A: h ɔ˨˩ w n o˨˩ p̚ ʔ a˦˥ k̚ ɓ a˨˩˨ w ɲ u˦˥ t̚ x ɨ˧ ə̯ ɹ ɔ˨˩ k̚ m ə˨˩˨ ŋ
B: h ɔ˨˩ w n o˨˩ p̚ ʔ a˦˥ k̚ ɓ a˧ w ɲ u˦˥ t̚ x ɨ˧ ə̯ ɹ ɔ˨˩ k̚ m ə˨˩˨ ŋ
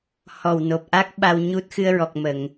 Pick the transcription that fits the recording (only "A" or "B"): B